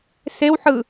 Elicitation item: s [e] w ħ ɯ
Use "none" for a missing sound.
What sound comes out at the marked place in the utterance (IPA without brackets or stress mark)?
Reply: e